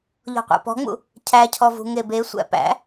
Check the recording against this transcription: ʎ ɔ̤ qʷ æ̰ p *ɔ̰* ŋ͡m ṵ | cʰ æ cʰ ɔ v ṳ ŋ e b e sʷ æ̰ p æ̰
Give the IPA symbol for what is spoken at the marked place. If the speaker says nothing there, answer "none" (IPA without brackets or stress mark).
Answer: ɔ̤